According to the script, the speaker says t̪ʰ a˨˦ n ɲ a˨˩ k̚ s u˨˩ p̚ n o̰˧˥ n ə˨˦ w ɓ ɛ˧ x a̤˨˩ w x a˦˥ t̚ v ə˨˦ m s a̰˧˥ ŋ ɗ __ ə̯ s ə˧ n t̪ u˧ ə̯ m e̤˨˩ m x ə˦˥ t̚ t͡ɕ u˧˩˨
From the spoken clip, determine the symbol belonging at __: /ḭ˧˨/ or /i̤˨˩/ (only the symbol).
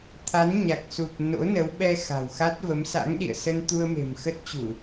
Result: ḭ˧˨